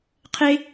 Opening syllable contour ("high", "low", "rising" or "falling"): high